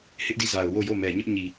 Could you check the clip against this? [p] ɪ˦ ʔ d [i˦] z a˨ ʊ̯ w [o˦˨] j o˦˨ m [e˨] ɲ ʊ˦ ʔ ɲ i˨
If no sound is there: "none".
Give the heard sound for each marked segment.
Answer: h, i˦˨, o˦˨, ɛ˨

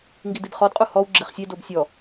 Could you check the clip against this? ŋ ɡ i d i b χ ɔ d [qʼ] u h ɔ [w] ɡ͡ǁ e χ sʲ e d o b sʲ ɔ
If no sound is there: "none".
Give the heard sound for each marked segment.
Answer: qʼ, w

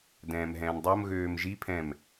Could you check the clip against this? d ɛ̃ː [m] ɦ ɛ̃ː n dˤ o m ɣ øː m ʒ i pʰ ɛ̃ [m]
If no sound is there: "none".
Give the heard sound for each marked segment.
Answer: m, m

